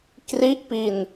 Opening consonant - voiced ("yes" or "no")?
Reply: no